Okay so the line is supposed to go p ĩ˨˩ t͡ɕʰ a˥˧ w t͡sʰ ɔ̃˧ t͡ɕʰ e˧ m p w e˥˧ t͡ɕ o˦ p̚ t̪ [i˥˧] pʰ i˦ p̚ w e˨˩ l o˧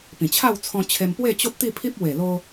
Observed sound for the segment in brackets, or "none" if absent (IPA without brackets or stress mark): i˥˧